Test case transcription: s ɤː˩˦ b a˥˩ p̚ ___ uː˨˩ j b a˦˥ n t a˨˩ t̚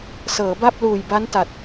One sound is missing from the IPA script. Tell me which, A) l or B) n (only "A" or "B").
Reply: A